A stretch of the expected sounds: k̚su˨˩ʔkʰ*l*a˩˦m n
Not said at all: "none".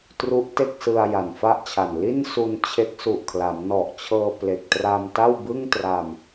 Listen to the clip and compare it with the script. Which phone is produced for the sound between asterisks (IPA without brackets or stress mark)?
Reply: l